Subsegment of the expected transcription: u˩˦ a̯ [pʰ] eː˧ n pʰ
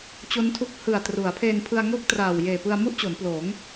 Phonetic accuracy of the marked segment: correct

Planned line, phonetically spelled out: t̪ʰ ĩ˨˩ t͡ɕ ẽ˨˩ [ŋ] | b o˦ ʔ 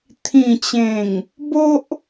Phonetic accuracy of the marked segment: correct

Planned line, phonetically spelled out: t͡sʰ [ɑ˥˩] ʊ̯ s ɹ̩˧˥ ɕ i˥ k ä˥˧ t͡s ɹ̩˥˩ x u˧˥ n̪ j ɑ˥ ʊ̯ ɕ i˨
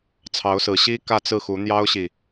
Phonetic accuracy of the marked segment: incorrect: ɑ˧˥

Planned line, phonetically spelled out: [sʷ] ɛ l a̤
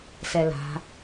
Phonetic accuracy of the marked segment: incorrect: s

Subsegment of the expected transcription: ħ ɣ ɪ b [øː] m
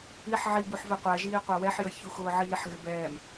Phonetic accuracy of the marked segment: incorrect: ɛː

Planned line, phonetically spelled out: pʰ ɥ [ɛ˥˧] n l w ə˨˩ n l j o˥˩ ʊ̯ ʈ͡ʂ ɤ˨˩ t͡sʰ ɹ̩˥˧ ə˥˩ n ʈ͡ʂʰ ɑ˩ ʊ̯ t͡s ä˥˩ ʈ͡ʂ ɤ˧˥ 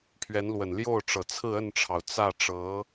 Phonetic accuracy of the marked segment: incorrect: ɛ˧˥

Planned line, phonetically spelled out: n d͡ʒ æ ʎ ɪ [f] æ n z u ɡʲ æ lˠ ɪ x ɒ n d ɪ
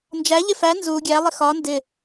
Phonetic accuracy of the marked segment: correct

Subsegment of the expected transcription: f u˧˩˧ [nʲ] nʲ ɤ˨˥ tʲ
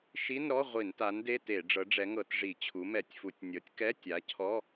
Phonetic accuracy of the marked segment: incorrect: tʲ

